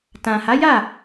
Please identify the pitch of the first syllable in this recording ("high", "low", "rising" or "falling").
low